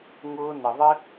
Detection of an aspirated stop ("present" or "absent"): absent